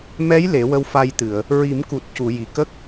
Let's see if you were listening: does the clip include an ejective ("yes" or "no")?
no